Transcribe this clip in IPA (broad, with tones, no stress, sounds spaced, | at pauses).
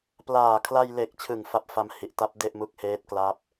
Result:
p l aː˨˩ kʰ l a˧ j l e˨˩ k̚ t͡ɕʰ ɯ˨˩ ŋ f a˦˥ p̚ f a˧ m h i˨˩ ʔ t a˦˥ p̚ d e˥˩ ʔ m u˦˥ k̚ h eː˦˥ t̚ k l a˦˥ p̚